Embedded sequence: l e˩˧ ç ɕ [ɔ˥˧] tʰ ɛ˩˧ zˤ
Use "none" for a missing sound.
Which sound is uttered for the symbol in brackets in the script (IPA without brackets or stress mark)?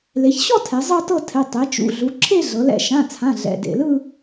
ɔ˥˧